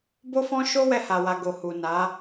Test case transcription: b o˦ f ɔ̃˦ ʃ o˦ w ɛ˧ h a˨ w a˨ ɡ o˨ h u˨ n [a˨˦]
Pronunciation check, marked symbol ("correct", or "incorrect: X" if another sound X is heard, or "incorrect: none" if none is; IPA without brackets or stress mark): correct